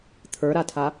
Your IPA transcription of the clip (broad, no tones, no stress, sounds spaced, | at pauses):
t̪ʰ ə˞ ɾ a tʰ a